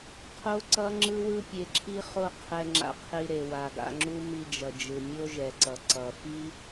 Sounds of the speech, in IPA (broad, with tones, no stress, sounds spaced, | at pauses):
qʰ o˦ ǀ ʌ˦ ŋ͡ǁ ɯ˦ w ɯ˦ pʲ e˧ ǁʰ i˦ χ o˦ qʰ ɛ˧ ŋ͡ǁ a̰˧ qʰ i˧ ɾ e˨ w a˨ ɡ a̰˧ ŋ͡ǁ u˦ m i˧ d͡ʒ ʌ˨ d͡ʒ ɯ˨ mʲ o˦ ʒ ɛ˨ ǀ ʌ˨ ǀ ʌ˨ f i˦